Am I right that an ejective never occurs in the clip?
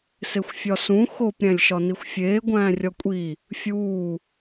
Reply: no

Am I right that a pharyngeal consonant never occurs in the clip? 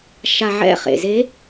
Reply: no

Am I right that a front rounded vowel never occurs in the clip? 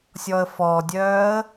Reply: no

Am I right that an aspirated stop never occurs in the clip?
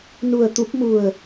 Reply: yes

